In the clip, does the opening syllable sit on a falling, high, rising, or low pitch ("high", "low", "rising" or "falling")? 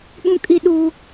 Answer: high